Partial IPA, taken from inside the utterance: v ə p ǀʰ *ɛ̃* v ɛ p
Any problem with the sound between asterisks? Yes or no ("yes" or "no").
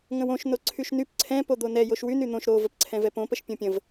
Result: no